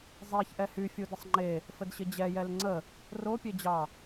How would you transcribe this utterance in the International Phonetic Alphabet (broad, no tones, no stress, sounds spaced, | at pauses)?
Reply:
zˤ e ç ʔ ɛ h y fʲ u d ɪ sˤ ŋ͡ǃ e | f ə d ɕ ɪ d͡ʑ ɛ j ɛ l ŋ͡ǀ ə | r o pʲ e d͡ʑ ɑ